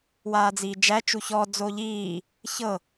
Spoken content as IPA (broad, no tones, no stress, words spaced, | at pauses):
waːd͡ziːd͡ʒæ t͡ʃuçɔ d͡zoʎiː | çɤ